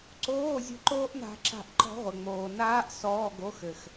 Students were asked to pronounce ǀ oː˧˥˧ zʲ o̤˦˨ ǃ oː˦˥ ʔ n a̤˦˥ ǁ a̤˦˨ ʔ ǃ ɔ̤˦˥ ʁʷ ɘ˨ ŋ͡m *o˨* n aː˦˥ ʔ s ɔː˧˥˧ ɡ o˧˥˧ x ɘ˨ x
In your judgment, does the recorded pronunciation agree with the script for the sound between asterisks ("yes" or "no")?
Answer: no